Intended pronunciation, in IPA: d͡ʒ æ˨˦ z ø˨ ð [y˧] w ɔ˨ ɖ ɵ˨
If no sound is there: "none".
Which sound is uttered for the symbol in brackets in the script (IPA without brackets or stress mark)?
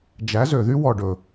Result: y˦